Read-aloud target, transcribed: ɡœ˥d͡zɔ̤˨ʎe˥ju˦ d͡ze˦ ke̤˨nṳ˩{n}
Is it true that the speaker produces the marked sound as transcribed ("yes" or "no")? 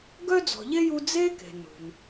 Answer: yes